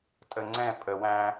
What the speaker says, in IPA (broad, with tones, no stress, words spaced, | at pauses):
tʼə˨ŋ͡ǀɛ̃˦˨ pʼə˨wæ̃˦